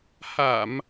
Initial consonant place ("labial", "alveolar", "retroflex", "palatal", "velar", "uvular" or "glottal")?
glottal